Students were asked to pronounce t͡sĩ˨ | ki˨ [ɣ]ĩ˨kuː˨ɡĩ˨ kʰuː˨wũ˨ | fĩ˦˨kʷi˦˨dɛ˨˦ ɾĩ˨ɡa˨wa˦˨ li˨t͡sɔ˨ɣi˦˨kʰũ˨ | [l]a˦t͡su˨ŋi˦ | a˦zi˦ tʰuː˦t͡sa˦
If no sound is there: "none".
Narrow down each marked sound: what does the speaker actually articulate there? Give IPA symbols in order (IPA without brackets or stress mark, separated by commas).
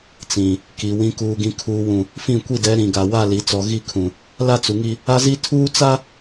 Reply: w, l